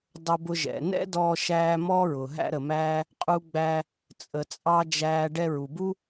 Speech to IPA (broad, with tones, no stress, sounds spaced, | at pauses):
dˤ ʊ˧ b ʊ˧ ʒ ɛ̰˩ n ɛ̰˥ d ɔː˧ ʃ æː˧ m ɔː˥ ɹ ʊː˩ ɦ æ̰˥ ɾ ə˩ m æː˥ | qʼ u˧ ɡ͡b æː˧ | t͡sʼ ə˩ t͡sʼ ɑ˧ d͡ʒ æː˧ ɖ ɛ˧ ɹ u˩ b u˥